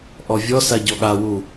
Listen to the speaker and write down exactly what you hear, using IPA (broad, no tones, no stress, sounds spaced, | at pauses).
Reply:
ʔ ɔ vʲ ɔ s a ɟ ɔ ɠ a w u